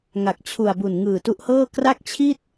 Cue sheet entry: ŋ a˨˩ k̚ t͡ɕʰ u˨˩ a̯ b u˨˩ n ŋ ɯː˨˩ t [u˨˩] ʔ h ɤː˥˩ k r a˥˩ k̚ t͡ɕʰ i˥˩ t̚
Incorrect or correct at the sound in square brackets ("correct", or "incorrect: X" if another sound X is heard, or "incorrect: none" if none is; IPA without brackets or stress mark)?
incorrect: u˦˥